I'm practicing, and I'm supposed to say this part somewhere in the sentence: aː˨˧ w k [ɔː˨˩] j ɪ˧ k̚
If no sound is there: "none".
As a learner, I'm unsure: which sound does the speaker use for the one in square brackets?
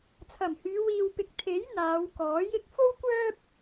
ɔː˨˥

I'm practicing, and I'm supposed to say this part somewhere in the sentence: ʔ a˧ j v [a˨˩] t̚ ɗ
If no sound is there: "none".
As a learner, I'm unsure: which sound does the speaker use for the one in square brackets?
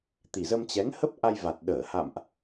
a˨˩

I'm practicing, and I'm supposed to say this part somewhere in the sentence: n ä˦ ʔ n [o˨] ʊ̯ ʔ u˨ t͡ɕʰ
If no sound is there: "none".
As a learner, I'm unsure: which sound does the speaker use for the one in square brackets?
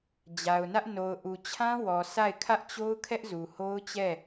o˨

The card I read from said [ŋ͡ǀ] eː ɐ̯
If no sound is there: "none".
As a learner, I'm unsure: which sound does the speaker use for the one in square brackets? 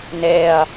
n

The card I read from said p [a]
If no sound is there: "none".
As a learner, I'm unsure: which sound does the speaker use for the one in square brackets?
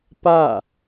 a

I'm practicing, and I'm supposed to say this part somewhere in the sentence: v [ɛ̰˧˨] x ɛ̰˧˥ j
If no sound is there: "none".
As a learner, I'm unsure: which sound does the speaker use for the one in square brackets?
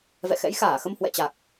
ɛ̰˧˨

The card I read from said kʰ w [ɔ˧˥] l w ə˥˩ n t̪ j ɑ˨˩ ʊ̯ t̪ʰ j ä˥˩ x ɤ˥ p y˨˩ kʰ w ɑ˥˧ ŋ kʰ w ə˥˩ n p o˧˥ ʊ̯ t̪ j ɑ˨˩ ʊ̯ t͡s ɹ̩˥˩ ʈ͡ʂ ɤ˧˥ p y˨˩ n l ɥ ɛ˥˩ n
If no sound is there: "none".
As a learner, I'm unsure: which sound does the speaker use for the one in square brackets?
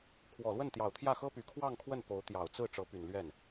ɔ˨˩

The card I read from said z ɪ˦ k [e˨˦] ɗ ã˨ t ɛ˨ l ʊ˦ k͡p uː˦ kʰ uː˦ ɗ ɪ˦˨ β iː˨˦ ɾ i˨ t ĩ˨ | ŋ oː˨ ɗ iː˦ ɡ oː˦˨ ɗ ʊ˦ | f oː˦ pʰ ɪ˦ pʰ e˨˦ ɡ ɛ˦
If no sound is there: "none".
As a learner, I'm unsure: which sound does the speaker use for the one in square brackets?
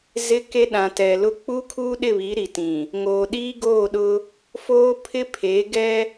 e˦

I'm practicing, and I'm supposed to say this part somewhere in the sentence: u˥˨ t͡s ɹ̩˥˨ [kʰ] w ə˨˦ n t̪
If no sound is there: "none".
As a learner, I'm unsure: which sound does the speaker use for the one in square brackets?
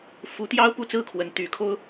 kʰ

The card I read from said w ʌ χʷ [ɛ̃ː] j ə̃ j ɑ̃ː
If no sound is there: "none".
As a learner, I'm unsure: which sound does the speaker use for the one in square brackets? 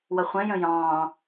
ɛ̃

